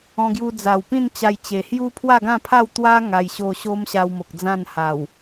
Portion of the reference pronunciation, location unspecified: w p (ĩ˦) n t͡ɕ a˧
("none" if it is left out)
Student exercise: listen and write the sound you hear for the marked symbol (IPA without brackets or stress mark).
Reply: ĩ˥˧